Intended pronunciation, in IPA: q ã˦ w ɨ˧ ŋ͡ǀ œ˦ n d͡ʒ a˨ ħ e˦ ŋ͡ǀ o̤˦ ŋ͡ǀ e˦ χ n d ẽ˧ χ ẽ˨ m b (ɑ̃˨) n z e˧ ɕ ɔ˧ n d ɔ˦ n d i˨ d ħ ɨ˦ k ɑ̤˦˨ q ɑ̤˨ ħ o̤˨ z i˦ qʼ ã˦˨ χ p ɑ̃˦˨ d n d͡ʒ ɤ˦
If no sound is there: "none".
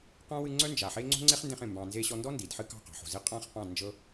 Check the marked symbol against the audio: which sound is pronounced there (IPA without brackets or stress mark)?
ɑ̃˨